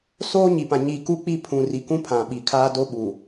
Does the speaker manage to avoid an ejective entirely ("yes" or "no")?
yes